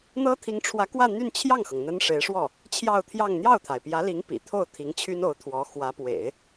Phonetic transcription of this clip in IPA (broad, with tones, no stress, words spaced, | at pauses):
n̪ɤ˥t̪ʰi˧˥ŋʈ͡ʂʰwä˧˥kwä˥˧ n̪y˥˧nt͡ɕʰjɑ˥˩ŋxɤ˩ŋ n̪ə˥nʂe˧˥ɪ̯ʂwɔ˥˩ | t͡ɕʰjɑ˥˧ʊ̯t̪ʰjɑ˥˧ŋ n̪jɑ˥˩ʊ̯t̪ʰa˩ɪ̯pjä˧˥li˧˥ŋ pḭ˨˩t̪ʰo˥˩ʊ̯ t̪ʰi˧˥ŋt͡ɕʰy˥no˧˥ʊ̯t̪ʰwɔ˧˥ xwä˧˥pwḛ˨˩˦ɪ̯